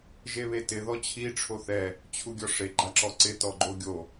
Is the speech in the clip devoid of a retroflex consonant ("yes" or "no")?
no